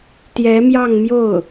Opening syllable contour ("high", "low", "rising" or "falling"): rising